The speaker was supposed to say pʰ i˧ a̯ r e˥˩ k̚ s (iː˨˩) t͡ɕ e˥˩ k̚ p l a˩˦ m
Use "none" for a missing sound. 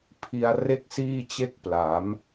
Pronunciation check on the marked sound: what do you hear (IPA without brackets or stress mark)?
iː˥˩